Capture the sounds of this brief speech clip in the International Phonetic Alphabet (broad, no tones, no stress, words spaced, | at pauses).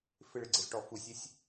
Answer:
fɪɭɪɡ͡ǀezʈɔ fusʲesʲ